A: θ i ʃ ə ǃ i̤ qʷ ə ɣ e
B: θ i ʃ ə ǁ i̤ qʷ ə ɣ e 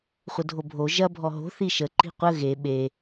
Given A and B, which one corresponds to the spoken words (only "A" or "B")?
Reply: A